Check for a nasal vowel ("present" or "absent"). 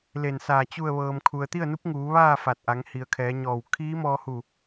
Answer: absent